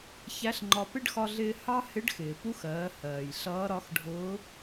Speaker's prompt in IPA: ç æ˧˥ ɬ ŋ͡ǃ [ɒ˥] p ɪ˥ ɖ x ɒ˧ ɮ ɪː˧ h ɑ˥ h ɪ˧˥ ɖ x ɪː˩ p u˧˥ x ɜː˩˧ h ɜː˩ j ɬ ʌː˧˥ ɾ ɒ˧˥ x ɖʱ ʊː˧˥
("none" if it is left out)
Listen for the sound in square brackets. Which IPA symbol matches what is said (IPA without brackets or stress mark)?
ɒ˧